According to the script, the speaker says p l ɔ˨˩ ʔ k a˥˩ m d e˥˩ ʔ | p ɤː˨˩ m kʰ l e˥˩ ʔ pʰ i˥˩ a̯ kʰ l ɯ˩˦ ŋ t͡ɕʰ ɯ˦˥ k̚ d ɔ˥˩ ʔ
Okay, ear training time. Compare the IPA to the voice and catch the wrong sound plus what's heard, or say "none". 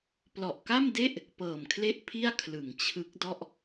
none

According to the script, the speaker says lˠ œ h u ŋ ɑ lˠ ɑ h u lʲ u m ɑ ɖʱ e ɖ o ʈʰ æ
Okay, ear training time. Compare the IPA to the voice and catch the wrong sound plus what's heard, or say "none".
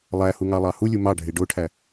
œ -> æ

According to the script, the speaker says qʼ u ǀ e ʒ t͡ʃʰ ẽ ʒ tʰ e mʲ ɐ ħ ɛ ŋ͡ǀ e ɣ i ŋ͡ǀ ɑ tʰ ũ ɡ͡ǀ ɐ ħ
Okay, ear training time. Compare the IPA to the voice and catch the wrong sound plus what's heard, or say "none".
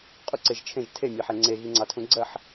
none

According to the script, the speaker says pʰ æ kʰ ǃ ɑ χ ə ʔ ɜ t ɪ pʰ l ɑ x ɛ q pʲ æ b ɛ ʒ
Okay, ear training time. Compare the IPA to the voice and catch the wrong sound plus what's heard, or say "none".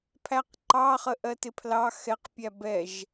kʰ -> q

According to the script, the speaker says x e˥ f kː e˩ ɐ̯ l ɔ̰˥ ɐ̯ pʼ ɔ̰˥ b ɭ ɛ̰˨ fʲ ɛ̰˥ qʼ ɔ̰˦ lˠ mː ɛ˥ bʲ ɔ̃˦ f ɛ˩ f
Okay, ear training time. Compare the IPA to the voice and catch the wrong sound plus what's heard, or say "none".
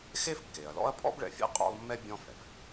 none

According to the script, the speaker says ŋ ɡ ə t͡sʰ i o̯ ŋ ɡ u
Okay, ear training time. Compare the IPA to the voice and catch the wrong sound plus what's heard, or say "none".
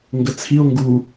none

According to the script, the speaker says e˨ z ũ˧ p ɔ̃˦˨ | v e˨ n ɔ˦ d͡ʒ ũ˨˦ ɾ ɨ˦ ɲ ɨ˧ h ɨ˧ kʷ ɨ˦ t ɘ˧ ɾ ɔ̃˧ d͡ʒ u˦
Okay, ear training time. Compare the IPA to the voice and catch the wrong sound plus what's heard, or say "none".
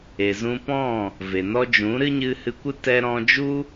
ɘ˧ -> ɛ˧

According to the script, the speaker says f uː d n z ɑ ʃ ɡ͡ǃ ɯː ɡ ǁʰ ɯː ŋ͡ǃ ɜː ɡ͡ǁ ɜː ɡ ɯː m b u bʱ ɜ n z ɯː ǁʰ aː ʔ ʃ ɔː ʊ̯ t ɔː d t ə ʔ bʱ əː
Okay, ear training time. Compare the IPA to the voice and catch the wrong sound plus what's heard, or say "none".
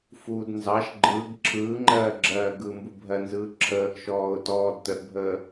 aː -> əː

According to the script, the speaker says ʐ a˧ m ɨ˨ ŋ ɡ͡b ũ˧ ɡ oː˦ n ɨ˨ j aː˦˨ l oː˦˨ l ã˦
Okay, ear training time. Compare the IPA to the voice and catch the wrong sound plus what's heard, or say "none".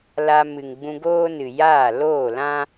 ʐ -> l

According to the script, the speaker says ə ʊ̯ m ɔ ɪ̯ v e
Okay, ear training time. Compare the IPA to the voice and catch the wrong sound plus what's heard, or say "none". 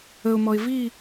e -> i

